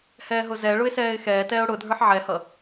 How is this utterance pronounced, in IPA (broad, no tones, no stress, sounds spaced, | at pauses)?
h ɛː ɦ ʊ z ɛ ɭ ʊ ɪ̯ s ɛː ɪ̯ x ɛː t ɛː ʊ̯ ɽ ʊ dʱ ə˞ ħ ʕ ɛ h ʌ